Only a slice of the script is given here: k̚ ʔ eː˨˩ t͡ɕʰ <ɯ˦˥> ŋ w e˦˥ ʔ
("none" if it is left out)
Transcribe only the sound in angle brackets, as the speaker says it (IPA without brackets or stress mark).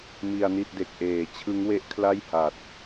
ɯ˦˥